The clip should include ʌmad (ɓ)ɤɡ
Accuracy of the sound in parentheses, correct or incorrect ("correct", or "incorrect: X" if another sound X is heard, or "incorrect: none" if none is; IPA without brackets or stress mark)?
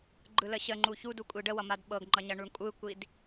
correct